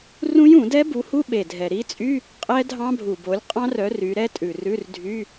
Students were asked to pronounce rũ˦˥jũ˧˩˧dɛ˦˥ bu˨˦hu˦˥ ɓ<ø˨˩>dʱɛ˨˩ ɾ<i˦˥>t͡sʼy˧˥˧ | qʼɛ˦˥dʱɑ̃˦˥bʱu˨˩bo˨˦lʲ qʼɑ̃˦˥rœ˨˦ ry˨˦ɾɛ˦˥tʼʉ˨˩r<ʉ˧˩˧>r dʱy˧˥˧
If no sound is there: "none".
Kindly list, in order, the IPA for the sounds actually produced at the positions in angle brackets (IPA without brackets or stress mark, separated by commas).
e˨˩, i˦˥, ʉ˧˥˧